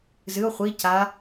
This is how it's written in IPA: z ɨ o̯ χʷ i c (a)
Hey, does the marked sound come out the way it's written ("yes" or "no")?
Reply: yes